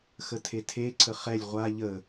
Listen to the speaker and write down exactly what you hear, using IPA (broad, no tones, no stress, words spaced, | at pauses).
xətʰetʰe ǀʰəχɛlʲ ʁʷa ʎə